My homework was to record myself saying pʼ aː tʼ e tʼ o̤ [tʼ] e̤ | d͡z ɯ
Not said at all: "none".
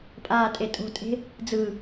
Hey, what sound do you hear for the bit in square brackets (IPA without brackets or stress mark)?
tʼ